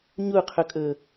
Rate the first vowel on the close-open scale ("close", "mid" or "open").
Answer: close